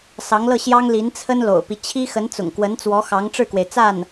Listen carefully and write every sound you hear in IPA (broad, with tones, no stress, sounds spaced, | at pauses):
s ɑ˧˥ ŋ l ɤ˥˩ ɕ j ɑ˥ ŋ l i˧˥ n t͡sʰ ə˥ n l o̰˨˩ ʊ̯ p i˦ t͡ɕʰ i˥ x ə˧˥ n t͡s ʊ̰˨˩ ŋ k w ə˧˥ n t͡s w ɔ˧˥ x ɑ˧˥ ŋ ʈ͡ʂ ɻ̩˥˩ k w e˩ ɪ̯ t͡s a˥˩ n